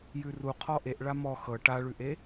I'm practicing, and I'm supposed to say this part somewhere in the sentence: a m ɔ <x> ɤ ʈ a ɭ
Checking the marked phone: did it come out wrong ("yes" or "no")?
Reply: no